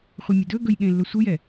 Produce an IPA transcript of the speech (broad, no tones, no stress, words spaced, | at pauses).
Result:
χʷɯmʲɘdɵɡɵj ɠẽlːɵsʷɯjɛ